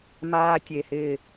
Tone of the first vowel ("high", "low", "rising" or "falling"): high